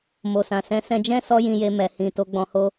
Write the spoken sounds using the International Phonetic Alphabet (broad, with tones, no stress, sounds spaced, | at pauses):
m o˨ s ã˨ s ɛ̃˨˦ s ɛ̃˧ d͡ʒ ɛ̃˦ s ɔ˦ j ĩ˧ j e˧ m ɛ˨ h ĩ˨ t o˨˦ ɡ͡b ɔ̃˧ h o˦